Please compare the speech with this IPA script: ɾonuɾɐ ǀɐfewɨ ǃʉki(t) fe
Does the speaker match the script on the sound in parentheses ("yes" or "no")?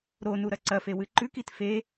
yes